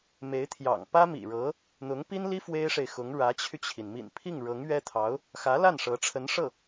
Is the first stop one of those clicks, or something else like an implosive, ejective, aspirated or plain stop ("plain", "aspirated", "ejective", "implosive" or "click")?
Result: aspirated